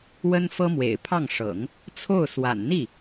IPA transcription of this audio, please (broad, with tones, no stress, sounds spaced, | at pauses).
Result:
w ə˥ n f ɤ˥ m w ḛ˨˩ ɪ̯ pʰ ɑ˥˩ ŋ ʂ ɤ̰˨˩˦ ŋ | t͡sʰ o˥˩ ʊ̯ s w a̰˨˩ n n̪ i˥˩